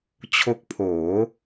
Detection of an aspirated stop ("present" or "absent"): present